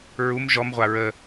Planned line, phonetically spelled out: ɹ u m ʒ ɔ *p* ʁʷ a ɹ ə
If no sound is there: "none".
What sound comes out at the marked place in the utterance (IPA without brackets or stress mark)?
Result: m